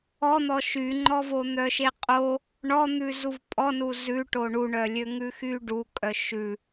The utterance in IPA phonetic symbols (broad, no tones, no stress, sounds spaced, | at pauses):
ɔ n̪ ɔ ʃ y ŋ͡ǃ ɔ v o n̪ œ ʃ e qʼ o | ɳ ɔ n̪ ʉ z u v pʼ ɔ n u z ʉ ʈ o ɳ u ɳ œ lʲ ø ŋ ʉ x y ɖ u kʼ œ ʃ ʉ